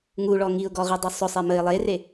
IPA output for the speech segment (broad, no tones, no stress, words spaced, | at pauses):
ŋuɭɔ ŋiʊ̯ɡɔʁidˤʊ sˤʊsˤe məɪ̯ lˠere